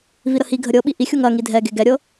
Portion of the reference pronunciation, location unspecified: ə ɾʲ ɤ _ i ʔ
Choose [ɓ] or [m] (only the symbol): ɓ